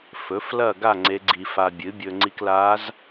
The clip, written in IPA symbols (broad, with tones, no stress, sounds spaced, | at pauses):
f ɵ˩˥ f l ɐ˥˨ ɡ a˥˨ ŋ͡ǀ e˧˥ ɡ͡ǀ i˧ f a˧ bʲ ɨ˩˥ bʲ ɵ˧ ŋ͡ǀ i˧ k l a˧˥ z